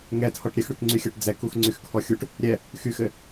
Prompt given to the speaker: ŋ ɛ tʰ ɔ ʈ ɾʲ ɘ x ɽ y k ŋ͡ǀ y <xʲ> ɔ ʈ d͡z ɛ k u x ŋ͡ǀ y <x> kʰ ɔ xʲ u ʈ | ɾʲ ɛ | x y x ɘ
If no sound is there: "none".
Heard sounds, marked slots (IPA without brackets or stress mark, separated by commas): xʲ, x